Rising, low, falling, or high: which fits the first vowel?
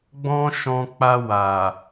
high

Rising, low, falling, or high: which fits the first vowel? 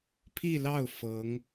falling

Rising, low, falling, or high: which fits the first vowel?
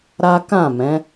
high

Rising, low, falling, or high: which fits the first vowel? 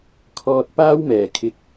high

